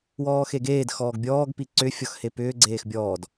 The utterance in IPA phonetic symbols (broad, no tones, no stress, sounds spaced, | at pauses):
w ɔː x e ɡ eː d x ɔː ɡ bʲ ɔː ɡ p i ǀ ʏ fʲ ɔ x h e p ʏː ɡ͡ǀ eː x bʲ ɔː d